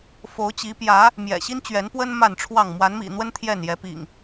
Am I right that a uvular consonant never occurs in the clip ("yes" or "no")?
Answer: yes